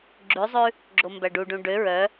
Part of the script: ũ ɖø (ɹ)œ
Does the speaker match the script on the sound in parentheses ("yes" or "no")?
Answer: yes